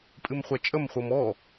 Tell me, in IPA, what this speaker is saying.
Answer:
pʼɨmχʷɛt͡ʃʼəm χʷɤmɔ

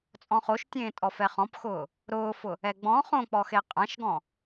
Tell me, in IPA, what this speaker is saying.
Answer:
t͡sʼɔ̃χoʃtʲẽː tʼɔfɛχɔ̃pxʊː | ɾʊːfʊ | ɛɡ͡bɔ̃ χõk͡pɔxe qʼãʃɡɔ̃

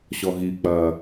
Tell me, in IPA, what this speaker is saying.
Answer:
ɕɔɣik͡pɐː

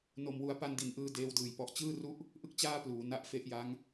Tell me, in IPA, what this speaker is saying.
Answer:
no˧mwu˦˥a̯ pa˧ndi˩˦nʔɯː˧ deː˧wdɯː˨˩j pɔ˨˩ʔt͡ɕɯː˥˩ru˥˩ʔ | ʔɯ˥˩k̚t͡ɕaː˥˩pluː˩˦ na˦˥ʔfe˦˥ʔja˦˥ŋ

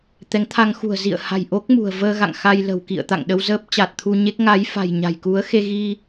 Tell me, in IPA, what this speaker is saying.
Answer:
t̪ɛ˨˦ŋt̪ʰa˧ŋxṳ˨˩ə̯ zḭ˧˨ə̯ha̤˨˩jʔo˦˥k̚ mṳ˨˩ə̯vəː˧ɣa̰˧˨ŋ xa˧jlə̤˨˩w kḭ˧˨ə̯t̪a̰˧˨ŋɗə˧w zəː˦˥p̚t͡ɕa˨˩t̚t̪ʰu˧ɲe˦˥k̚ ŋa˨˦jfa̤˨˩j ɲa̤˨˩jku˨˦ə̯ xe˧ɣi˧

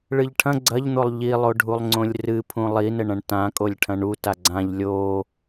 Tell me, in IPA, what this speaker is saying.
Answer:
ɭɨʎʈʰɐ̃ ɡ͡ǀɐʎn̪olˠ ʎilˠoɖʱulˠ ŋ͡ǀõlʲrɨpʰũ lˠinɘɳɐ̃ɳ tã kʼolʲʈʰɐ̃ɳuta ɡ͡ǀãʎ lʲo

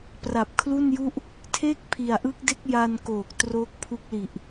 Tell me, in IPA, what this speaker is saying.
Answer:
pra˨˩p̚kʰlu˥˩nju˥˩ʔ | tʰe˥˩k̚ pʰi˨˩a̯ʔɯː˦˥k̚de˦˥k̚ ja˧nkoː˨˩k̚ troː˦˥k̚pʰu˦˥k̚li˨˩ʔ

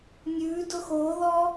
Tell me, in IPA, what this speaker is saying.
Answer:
nʲʉdʊ xoðɔ

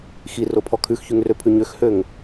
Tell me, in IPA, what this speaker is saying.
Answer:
xiropʰɔ kʰʉxçyŋrøpʰʉ ɲøxhøŋ

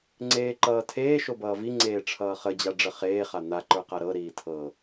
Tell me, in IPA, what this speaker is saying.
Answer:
ŋ͡ǀeːǃʌːtʰeː ʃobʌːvi ŋ͡ǀeːʈ͡ʂʰʌːχə d͡ʑaɖ͡ʐəχeː χan̪a ǃə˞qaɾɤ ɾiːtʰɤ

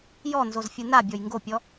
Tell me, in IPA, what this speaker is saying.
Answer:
jɔnzozfʲɯ nabʲɔj ŋɡopʲɔ

